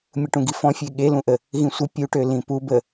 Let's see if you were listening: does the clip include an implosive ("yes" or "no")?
yes